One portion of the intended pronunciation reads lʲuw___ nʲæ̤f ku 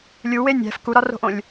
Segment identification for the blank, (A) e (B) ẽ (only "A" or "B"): A